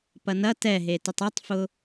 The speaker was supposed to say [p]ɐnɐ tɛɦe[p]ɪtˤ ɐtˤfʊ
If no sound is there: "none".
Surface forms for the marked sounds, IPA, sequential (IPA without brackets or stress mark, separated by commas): p, t